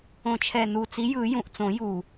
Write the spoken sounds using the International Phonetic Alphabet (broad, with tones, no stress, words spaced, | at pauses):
õ˨˩t͡ʃʰɛ˨˩nu˨˩ t͡si˨˥ jɯ˨˩˦ jũ˨˩ʔt͡sõ˨˩˦ ju˨˩